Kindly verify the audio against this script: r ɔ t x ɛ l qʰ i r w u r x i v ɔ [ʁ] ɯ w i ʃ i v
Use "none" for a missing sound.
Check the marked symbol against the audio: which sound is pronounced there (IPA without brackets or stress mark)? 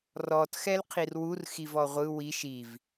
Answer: ʁʷ